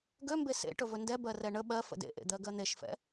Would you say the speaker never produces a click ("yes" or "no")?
yes